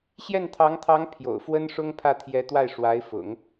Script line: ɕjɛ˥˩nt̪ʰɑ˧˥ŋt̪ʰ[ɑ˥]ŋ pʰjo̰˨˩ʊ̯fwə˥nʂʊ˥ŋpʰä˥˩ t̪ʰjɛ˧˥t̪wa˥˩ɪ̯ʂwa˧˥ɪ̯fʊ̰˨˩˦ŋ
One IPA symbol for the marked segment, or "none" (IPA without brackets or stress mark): ɑ˧˥